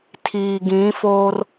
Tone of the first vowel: low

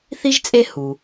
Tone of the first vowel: high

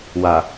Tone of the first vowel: low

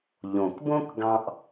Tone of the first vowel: low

